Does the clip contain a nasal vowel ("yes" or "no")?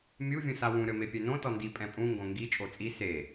yes